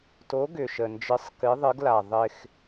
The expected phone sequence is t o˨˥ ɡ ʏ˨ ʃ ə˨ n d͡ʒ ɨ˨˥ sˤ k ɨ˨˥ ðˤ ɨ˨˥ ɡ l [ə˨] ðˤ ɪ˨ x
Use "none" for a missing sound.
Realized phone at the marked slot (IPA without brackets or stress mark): a˨